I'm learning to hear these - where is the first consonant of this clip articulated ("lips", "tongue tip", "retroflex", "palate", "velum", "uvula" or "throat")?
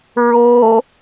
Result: tongue tip